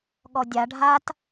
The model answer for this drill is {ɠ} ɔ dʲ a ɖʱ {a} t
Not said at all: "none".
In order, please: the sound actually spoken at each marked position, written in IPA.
ɠ, a

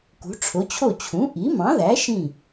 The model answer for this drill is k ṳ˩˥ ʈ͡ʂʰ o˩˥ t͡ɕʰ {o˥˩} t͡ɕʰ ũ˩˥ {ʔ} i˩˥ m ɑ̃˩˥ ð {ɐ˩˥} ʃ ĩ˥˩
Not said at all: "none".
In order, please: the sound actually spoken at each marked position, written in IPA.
o˥˩, ʔ, æ˩˥

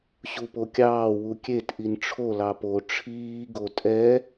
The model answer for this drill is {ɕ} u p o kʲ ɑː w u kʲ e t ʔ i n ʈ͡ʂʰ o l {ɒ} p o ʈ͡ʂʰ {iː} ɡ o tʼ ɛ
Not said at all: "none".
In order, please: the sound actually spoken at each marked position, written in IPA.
ɕ, ɑ, iː

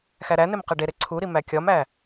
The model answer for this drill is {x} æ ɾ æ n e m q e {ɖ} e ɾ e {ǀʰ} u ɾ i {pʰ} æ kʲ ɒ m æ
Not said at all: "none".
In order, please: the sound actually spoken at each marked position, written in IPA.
x, ɖ, ǀʰ, m

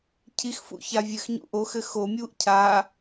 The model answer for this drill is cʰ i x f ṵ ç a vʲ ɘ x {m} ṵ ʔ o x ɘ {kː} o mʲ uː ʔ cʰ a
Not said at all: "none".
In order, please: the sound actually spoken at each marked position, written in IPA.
ɲ, x

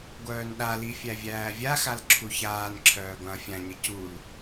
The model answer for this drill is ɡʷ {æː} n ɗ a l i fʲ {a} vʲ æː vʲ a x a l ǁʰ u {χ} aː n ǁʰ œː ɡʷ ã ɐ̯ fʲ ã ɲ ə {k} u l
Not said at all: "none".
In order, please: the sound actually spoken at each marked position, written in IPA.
œː, æ, ç, c

